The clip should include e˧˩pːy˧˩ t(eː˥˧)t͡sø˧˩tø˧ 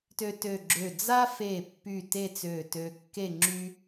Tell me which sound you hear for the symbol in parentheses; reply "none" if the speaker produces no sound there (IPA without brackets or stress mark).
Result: e˥˧